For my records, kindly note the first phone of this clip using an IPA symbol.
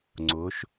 ŋ͡ǀ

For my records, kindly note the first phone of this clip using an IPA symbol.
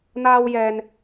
n̪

